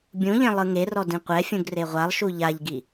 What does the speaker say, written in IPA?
bʲ ũ ʎ ẽ lˠ ɯ ŋ e r ɔ d ĩ qʷ ɛ fʲ ũ ɡ r e ʁʷ a lˠ ʃ u ʎ a ʎ ɡ i

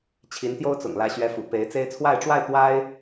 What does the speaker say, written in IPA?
t͡ɕʰ i˧˥ n t̪ j o˥ ʊ̯ t͡s ʊ̰˨˩ ŋ l ä˧˥ ɕ ɥ ɛ˧˥ f ṵ˨˩ p e˧˥ ɪ̯ t͡s e˥ ɪ̯ t͡sʰ w a˥˧ ɪ̯ ʈ͡ʂ w a˥˩ ɪ̯ t̪ w a˥ ɪ̯

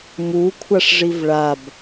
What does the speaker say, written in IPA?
m u kʷʰ a ʂ ʐ i v ɭ a b

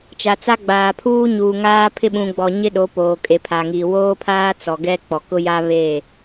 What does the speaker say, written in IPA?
t͡ʃ a˨ t͡s a˦ ɡ͡b aː˨ pʰ uː˦ ɲ uː˨ ŋ aː˦ pʰ ɪ˦ ɓ ũ˨ ɡ͡b ɔ˨ ɲ ɪ˦ ɗ o˨˦ p oː˨ kʼ e˨ pʰ a˨ ŋ i˨ w oː˦ pʰ aː˦ t͡s ɔ˨ ɡ ɛ˦ k͡p ɔ˨ k ʊ˦ j a˦ β e˦˨

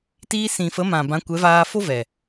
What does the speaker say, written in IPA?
t iː˧ s ĩ˨ f ə˨˦ m ã˨ b ã˨˦ kʷ ɛ˨˦ v aː˧ f o˦ v ɛ˨

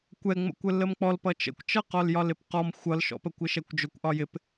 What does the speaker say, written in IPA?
kʷ ɛ ŋ͡m ə̰ kʷ ə lː ə m k͡p ɔ l p ʌ t͡ʃ ə̰ kʷ t͡ʃ ʌ q ɔ l j ɒ l ɪ p q ɔ m xʷ ʌ l ʃ ɔ̰ p ə kʷ ɪ ʃ ɛ kʷ d͡ʒ ʊ kʷ ʔ ɒ j ɪ p

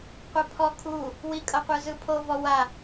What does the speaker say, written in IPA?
qʷ ɛ pʰ ɔ kʰ u | w i kʼ ɤ qʷ ɯ z ɯ pʰ o v ɔ w a

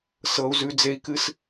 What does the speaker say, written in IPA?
s ɤ˦ u̯ z ʉ˦ d͡z e˦ i̯ k ɨ˦ s

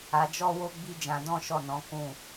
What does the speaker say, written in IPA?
a˧ d͡ʒ ɔ˦ w o˦ ɡ͡b i˦ d͡ʒ ã˧ d ɔ̃˦ ʃ ɔ˦˨ n ɔ̃˨˦ k ũ˦˨

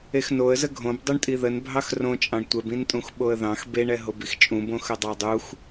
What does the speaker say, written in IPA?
e x n o ə̯ z ə ɡʱ õ b dˤ u ɳ tʼ i ð ə n bʱ ɑ x r õ t͡ʃʼ ɑ̃ ɳ tʷ ɛ b ĩ n tʼ ũ x ɓ o ə̯ ð ɑ̃ x b e ɳ ɛ ɦ o b i x t͡ʃʼ ũ b õ x ə dˤ ɑ dˤ u x

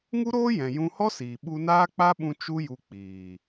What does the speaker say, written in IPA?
ŋ u˦ ɾ oː˦ j ɛ̃˨ j ũ˧ h ɔ˦ s iː˨ ɓ u˧ n aː˦ k͡p a˦ ɓ ũ˧ t͡ʃ u˦ j u˧ k͡p iː˨

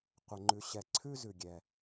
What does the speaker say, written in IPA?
qʷ ə˨ ŋ͡ǃ ʉ˨ ɕ ɛ˨ ǀʰ ʉ˥ z ʉ˩ ɡʲ ɛ˩

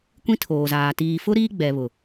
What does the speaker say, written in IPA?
kʷ ĩ˦ tʰ oː˨ z aː˨ t iː˨ f ʊ˦ ɾ iː˦ ɡ͡b ɛ˨ β ʊ˨

